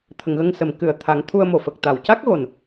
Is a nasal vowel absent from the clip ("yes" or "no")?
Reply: yes